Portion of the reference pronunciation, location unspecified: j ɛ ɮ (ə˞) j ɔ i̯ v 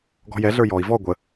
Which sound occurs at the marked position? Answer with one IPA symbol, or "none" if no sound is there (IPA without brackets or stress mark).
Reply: ə˞